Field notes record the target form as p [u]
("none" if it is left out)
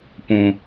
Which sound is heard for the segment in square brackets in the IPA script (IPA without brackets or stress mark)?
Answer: ũ